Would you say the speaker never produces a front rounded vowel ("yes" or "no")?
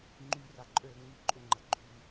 no